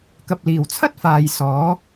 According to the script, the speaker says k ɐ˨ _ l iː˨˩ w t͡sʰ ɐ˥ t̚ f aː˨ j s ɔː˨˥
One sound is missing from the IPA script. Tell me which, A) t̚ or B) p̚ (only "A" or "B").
B